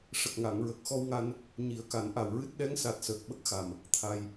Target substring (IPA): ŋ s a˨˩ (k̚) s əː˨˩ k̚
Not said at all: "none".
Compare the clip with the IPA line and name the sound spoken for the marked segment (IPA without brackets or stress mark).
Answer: t̚